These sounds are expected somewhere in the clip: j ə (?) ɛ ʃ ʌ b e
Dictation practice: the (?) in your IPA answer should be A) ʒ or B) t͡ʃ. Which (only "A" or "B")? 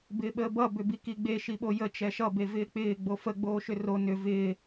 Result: B